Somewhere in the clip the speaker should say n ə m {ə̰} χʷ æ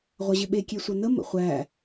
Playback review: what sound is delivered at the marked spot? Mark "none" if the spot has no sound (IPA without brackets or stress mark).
ə̰